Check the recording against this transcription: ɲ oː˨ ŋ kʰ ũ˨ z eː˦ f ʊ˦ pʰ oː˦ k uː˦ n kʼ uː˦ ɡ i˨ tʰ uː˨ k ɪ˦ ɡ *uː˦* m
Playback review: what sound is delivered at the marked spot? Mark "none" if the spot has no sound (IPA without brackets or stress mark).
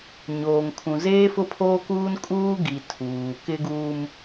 uː˦